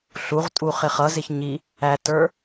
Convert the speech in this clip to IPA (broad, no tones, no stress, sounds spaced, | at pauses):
ɬ u ʁ tʼ u χ ɪ χ ʌ z ɪ ç ɲ i | æ t ə˞